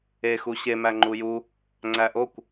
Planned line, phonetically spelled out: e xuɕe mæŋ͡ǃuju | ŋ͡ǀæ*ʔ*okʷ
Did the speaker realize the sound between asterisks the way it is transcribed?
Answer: yes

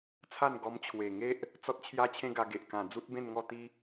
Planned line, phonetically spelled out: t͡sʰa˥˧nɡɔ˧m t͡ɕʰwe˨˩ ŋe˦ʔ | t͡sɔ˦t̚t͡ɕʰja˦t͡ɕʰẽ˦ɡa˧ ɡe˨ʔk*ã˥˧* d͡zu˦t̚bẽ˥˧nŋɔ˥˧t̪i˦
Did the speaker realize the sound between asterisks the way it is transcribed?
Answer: no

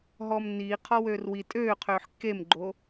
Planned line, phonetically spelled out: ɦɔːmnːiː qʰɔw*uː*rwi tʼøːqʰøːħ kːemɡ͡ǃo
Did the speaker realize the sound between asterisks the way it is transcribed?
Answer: no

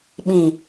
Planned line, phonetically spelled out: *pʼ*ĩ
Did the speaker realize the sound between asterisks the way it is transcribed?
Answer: no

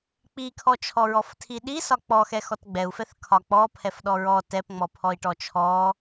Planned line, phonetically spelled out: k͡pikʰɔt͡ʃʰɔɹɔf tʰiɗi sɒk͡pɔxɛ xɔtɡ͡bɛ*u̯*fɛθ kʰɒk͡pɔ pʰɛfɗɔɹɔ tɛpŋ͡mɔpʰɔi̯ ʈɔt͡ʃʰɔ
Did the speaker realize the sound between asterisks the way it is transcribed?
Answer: yes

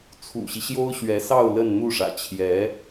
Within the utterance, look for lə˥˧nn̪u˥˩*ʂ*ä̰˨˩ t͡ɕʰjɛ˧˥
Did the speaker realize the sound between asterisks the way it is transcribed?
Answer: yes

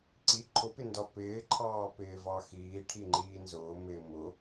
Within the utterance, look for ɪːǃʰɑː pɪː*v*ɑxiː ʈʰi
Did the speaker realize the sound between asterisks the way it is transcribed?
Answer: yes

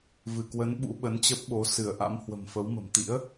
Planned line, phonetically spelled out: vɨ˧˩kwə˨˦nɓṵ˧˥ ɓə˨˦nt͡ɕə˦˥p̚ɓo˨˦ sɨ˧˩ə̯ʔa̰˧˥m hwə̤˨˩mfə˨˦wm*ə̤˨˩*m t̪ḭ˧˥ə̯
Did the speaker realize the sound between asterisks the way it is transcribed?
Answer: yes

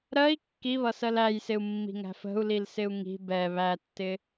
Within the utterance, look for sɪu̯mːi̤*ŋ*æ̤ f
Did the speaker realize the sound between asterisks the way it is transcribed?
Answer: yes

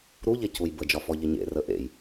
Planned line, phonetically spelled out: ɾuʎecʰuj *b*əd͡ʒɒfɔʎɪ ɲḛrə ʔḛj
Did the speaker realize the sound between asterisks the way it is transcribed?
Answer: yes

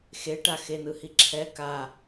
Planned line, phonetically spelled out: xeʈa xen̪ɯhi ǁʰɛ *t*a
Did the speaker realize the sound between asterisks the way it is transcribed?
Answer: no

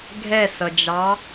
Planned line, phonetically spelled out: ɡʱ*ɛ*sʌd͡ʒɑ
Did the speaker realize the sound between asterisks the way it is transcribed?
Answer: yes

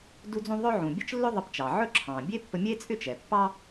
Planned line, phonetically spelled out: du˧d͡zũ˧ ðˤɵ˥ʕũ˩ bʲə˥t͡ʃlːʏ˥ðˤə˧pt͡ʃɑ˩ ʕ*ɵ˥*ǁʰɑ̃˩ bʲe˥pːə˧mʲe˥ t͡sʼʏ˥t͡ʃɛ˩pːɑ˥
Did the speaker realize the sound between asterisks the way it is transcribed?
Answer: yes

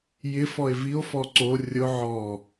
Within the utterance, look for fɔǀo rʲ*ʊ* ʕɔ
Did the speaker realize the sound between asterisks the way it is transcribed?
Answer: yes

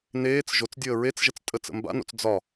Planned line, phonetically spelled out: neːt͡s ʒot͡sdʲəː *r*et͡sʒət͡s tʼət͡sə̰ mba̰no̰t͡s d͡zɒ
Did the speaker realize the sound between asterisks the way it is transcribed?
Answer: no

